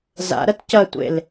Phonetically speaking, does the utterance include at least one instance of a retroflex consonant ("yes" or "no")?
no